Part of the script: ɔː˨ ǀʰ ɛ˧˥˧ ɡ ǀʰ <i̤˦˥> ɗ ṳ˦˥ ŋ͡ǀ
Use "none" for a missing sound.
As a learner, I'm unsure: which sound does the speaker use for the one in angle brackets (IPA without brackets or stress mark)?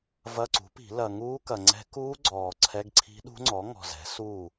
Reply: i̤˦˥